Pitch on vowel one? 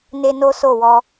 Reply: high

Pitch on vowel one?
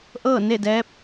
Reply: falling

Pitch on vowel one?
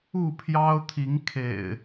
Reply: falling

